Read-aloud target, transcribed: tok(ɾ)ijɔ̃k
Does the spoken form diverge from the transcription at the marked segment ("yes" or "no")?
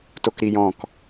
no